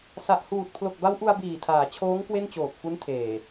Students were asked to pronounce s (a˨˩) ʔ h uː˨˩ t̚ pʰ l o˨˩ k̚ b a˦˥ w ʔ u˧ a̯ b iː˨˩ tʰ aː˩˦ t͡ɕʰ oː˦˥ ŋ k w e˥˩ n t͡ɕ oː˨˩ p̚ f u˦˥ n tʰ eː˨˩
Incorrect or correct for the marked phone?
correct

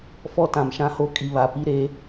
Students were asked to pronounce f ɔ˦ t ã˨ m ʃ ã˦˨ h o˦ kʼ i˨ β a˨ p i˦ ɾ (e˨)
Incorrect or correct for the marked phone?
incorrect: e˦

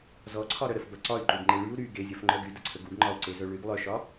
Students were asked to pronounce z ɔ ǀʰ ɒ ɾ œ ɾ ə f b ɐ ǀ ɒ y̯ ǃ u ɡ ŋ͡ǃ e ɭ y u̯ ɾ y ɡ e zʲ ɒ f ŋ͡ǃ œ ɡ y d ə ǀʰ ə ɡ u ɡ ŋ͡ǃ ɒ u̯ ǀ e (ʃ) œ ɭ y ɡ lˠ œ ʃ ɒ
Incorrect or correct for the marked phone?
incorrect: z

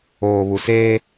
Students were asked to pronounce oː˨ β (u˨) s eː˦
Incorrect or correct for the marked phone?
correct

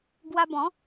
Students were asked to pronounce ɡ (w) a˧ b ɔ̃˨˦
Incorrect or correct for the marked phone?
correct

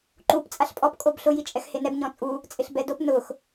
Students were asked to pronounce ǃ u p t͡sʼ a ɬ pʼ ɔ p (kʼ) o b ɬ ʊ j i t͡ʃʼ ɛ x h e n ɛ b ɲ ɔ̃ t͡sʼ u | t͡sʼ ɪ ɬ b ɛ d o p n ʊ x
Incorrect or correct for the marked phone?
correct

